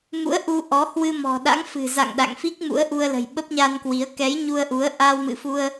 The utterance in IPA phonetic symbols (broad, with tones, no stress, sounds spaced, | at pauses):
m ṵ˧˥ ə̯ ʔ u˧ ʔ ɔ˨˦ h w ɨ˧ m ɔ̤˨˩ ɗ a̰˧˥ ŋ f ɨ̤˨˩ z a̰˧˨ ŋ ɗ a̰˧˨ ŋ f i˦˥ k̚ m ṵ˧˥ ə̯ ʔ u˧ ə̯ l ə̤˨˩ j ɓ ə˦˥ p̚ ɲ a˧ n k w i˨˦ ə̯ k ɛ˨˦ j ɲ u˧ ə̯ ʔ u˨˦ ə̯ ʔ a˧ w m ɨ̰˧˨ f u˧ ə̯